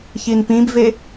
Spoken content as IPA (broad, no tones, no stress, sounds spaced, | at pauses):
ç i n p ĩ b v e